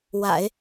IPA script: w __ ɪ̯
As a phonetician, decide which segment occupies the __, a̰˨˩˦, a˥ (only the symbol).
a̰˨˩˦